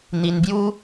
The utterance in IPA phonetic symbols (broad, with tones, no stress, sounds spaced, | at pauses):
n̪ i˧ n b j u˦